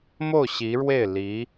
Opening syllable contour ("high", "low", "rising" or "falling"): falling